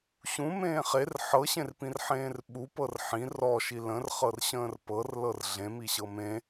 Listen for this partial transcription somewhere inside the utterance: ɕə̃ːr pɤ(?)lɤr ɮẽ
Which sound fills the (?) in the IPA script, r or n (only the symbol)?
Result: r